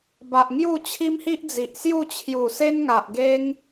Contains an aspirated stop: yes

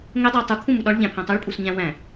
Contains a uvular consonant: no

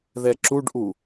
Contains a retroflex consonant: yes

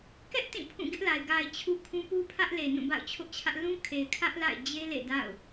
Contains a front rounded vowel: no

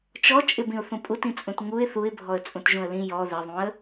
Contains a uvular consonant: no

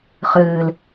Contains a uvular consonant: yes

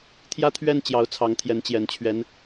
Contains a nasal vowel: no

